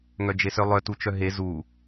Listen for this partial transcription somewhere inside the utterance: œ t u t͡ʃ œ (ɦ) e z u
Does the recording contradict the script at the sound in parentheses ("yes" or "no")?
no